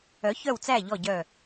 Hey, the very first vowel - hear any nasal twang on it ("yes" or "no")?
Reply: no